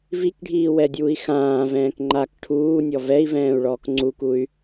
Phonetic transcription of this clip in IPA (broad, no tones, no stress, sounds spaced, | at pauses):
v i k ɖʱ iː w ɛ dʲ uː i̯ x ãː v ɛ̃ː k ŋ͡ǃ a k ʈʰ uː nʲ ɔ v ɛ i̯ v ɛ̃ː u̯ ɭ ɔː k ŋ͡ǀ u k u y̯